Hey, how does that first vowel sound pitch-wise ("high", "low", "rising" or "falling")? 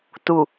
low